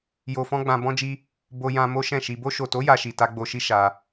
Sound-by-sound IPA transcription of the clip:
j o˧ f ɔ̃˦ ɡ͡b ã˧ b ɔ̃˦ d͡ʒ i˦ | b o˧ j ã˧ m o˦ ʃ ɛ̃˦˨ ʃ i˧ b o˧ ʃ o˨ t o˨˦ j a˧ ʃ i˨ t a˧ ɡ͡b o˧ ʃ i˦ ʃ a˧

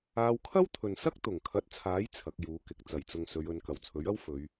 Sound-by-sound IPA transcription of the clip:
aː˧ w kʰ ɐ˥ w t̪ʰ ɵ˨ n s ɐ˥ k̚ t̪ ʊ˨˩ ŋ kʰ ɐ˨˥ t̚ t͡sʰ aː˨˥ j t͡sʰ ɐ˨˥ k̚ j uː˨˥ k ɪ˨˥ k̚ t͡s ɐ˨˩ j t͡s ʊ˨ ŋ s ɵ˨˧ ɥ ɵ˨˧ n k ɐ˨˩ w t͡sʰ ɵ˨˥ ɥ ɐ˥ w f ɵ˨˧ ɥ

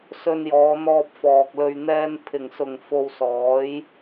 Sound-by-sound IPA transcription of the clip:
s ɵ˧ n j ɔː˨˧ n̪ ɔː˧ p̚ f ɔː˨ k̚ l ɵ˧ ɥ n̪ ɛː˥ n pʰ ɪ˨˩ ŋ s ʊ˨˩ ŋ f o˧ w s ɔː˨˥ j

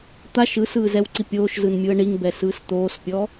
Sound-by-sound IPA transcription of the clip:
t̪ a ʃ ɯ s ɯː z ɛ w ǀ i pʲ oː ʃ z ɯ n mʲ u ə̯ ɳ i ŋ b ɛ s ɯː s t̪ oː s pʲ ɔ

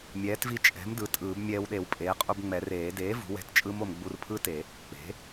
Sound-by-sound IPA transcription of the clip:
mʲ ɛː˩˥ t v i˧ t͡ʃʼ ɛ̤˩˥ m d ɯ˩˥ tʼ ɯː˨˩˦ b mʲ ɛː˧ w ɗ e˨˩˦ w pʼ eː˩˥ qʼ u˧ b ŋ͡m ɛ˨˩˦ r eː˨˩˦ d eː˩˥ v ṳ˩˥ w ɛ̤˧ t t͡ʃʼ ɯ˦˥ m o˧ m ɡ͡b u˧ r pʰ ɯ˦˥ t e˨˩˦ | k͡p e̤˩˥

